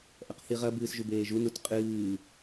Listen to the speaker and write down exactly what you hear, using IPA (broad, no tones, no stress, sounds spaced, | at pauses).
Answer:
ʔ ɐ q θ i ʁ ɐ b ɨː s ʒ u b eː ʒ u n u t qʼ ɨː